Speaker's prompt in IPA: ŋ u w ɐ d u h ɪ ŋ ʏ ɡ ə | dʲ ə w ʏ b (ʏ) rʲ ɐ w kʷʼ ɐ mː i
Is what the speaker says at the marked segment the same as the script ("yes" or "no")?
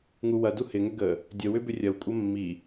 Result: yes